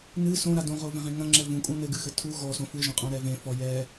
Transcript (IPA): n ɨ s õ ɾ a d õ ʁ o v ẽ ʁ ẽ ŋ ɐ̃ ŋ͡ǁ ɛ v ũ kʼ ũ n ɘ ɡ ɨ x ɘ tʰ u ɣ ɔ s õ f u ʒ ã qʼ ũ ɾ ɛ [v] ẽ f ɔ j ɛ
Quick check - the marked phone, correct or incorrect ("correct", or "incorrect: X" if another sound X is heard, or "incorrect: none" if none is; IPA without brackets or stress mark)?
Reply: correct